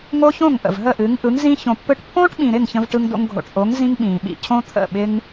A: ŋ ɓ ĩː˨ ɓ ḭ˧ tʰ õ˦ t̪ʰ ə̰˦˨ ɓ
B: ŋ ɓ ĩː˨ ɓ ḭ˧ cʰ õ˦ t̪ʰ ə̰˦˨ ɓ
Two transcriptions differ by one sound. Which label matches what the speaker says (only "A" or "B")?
B